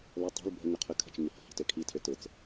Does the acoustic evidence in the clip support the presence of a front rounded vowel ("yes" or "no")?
yes